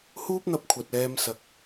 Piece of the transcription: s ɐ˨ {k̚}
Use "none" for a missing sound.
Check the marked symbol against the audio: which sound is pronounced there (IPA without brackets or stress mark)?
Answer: k̚